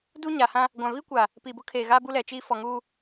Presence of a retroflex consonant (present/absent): absent